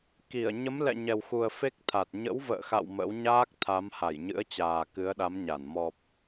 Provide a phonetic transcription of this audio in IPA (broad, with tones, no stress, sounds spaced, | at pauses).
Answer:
k i˧˩ ə̯ ɲ ə˨˦ m l ɛ̰˧˨ ɲ ɛ˨˩ w x u˨˩ ə̯ f e˦˥ k̚ t̪ʰ a˨˩ t̚ ɲ ə̰˧˥ w v ə̰ː˧˨ x a̰˧˨ w m ə̰˧˥ w ɲ aː˦˥ k̚ t̪ʰ a˨˦ m h a˧˩ j ɲ ɨ̰˧˥ ə̯ t͡ɕ aː˨˩ k ɨ˨˦ ə̯ ɗ a˨˦ m ɲ a˧˩ n m ɔ˨˩ p̚